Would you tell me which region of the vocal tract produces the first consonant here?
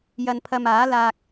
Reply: palate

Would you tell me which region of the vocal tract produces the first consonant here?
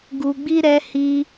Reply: velum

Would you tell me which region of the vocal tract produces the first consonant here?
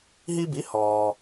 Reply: throat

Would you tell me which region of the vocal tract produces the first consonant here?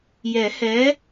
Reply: palate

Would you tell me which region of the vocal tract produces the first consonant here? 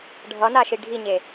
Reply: retroflex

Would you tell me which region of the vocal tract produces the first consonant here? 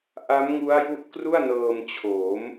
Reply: throat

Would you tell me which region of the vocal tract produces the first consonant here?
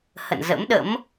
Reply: throat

